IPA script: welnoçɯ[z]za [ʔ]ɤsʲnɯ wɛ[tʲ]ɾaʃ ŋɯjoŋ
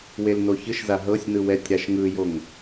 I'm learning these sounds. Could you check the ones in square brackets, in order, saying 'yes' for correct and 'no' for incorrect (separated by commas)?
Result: no, no, yes